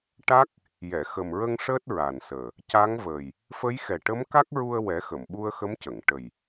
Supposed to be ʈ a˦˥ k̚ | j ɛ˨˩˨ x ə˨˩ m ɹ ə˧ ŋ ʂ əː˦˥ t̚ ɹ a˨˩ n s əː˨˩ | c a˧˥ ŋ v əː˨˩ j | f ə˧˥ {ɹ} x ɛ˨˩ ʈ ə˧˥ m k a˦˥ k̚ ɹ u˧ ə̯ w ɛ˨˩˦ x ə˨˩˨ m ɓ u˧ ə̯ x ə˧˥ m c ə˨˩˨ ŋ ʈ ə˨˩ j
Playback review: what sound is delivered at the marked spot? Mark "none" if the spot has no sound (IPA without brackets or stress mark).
j